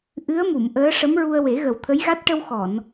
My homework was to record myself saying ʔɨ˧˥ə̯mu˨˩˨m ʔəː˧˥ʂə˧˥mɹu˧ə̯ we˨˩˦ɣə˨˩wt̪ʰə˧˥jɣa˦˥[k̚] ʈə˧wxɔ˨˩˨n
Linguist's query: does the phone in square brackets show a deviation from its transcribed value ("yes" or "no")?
yes